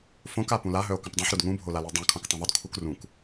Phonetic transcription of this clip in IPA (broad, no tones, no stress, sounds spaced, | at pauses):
f õ k a p ũ l a ɦ œ o̯ k œ̃ p dˤ œ̃ ħ ɾ u d ŋ ũ bʱ o l a l e dˤ ã kʰ õ k tˤ ũ ðˤ u d kʰ u k r ũ k